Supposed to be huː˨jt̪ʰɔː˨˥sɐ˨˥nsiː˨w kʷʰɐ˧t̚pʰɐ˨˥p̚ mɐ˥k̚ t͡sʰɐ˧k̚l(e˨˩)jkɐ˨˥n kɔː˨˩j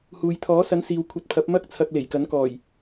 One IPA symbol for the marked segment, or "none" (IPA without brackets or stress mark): e˨˩